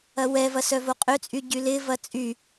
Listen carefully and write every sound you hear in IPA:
ɐwɛvɐ sœvoqʼøt͡sʼy ɟylɪvɐ t͡sʼy

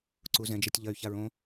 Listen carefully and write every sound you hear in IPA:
ǀuzɛ̃d͡ʒɛtʲ ʎɐy̯çaɹ õ

